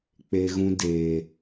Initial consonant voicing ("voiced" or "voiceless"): voiceless